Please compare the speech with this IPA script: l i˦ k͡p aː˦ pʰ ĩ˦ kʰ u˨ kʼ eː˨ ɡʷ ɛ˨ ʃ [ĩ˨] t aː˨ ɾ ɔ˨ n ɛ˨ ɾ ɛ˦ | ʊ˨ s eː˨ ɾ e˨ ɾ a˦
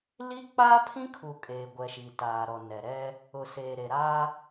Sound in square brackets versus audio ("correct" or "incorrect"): incorrect